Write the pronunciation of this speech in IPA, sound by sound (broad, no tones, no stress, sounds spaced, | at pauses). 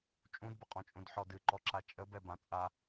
t͡ʃʼ ũ d b ə qʼ ɔ̃ t͡ʃʼ ũ d ħ ɔ d ɨ ǃ ɔ ǁ a t͡ʃʼ ə b ɛ b ã t͡sʼ a